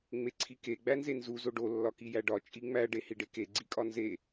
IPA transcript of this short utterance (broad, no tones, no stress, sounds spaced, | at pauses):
ŋ͡m e ǀʰ i k e ɡ͡b æ n z e n z u z o ɖ o lː ɒ k i j æ ɖ ɒ t͡ʃʼ i ŋ͡m æ ɖ e h i ɖ e k e ɡ͡ǀ i kʼ ɒ n z e